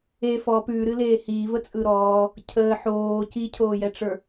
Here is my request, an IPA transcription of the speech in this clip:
e fɔ pʉɾɨleː hiːvət͡sʼɯ ɾɔː | cʰəː ħoː cicʰoːjɛʈ͡ʂə˞

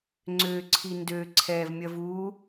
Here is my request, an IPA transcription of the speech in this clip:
ŋ͡ǀøǀʰi ndø ǀʰɛvmʲɐv u

